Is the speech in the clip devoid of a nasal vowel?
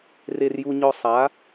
yes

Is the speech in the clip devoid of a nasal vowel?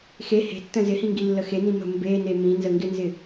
no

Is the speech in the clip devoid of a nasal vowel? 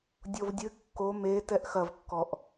yes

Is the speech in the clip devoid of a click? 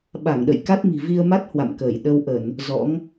yes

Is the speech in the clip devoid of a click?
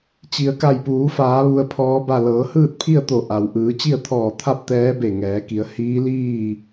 yes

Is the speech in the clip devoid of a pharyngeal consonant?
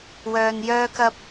yes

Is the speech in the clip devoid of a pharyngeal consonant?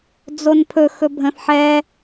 no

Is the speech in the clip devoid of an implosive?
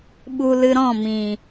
no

